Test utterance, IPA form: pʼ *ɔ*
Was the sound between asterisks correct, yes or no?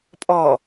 yes